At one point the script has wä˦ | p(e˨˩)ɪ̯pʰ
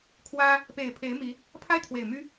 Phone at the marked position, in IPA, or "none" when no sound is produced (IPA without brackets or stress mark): e˨˩